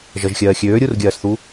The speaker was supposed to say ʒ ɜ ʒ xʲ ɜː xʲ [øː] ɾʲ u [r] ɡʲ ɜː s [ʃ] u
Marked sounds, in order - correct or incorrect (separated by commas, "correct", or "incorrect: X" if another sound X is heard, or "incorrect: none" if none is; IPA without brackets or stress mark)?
correct, correct, incorrect: θ